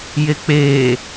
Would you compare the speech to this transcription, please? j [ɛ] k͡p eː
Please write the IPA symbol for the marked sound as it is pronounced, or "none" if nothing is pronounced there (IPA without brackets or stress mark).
e